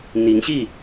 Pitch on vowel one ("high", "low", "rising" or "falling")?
rising